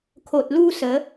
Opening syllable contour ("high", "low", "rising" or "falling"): low